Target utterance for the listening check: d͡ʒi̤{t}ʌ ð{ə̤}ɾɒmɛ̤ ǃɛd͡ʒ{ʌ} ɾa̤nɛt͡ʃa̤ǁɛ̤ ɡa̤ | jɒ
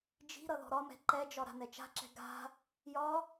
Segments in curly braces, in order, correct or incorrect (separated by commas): incorrect, incorrect, incorrect